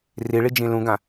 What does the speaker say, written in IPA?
riɭi d͡ʒĩlũɡã

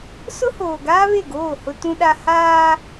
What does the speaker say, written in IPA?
sʊ˦hoː˨ ɡaː˦βe˦˨ɡoː˦˨ hʊ˦tũ˦ɗa˦ haː˦

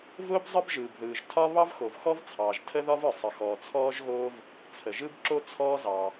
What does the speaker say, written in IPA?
vʊː˥bzˤə˥bʒɯː˩bðɯː˩ʒ tʰɒ˥ βɑ˥vxo˩vxɔ˥vt͡sʰɑː˩ʒ tʰə˥ðɒ˥vɯ˩ sˤə˩xɔː˩t͡sʰɔː˥ʒɣoː˥v | t͡sʰə˩ʒɯ˥bǁo˥ t͡sʰɔː˥zɑ˩

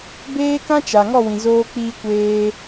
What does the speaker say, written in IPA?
beː˦kã˦t͡ʃa˨ ŋɔ˦˨wĩ˨ zoː˧k͡piː˧ kʷeː˧

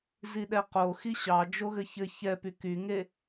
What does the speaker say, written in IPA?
ziɗɛqo xiɕɑ d͡ʒoɣɘçɘ çɛpy kyŋe

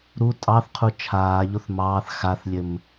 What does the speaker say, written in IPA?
ɾu tʼɑθqʰu t͡ʃʰaːʎoθ mɑːθ xaθlʲɘm

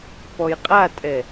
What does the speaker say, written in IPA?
pɔjqʼatʼɛ

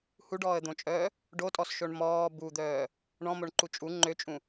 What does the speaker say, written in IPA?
huɖɔːə̯d̪õt͡ʃʼœː | ɖotʼɔsʃoɳ mɔː bud̪œː | ɳɔ̃moɳǃu t͡ʃʼu ŋ͡ǃøt͡ʃʼũ

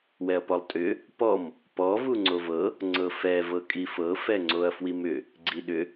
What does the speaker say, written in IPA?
wɛɐ̯pɔlˠtʼʏ | pɔm | pɔ vuŋ͡ǀovɤ | ŋ͡ǀɤfɛ vɤkʼifɤ fɛŋ͡ǀoɐ̯fwimʏ | ɡ͡ǀiɗʏ

